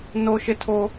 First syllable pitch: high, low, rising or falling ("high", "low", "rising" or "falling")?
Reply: high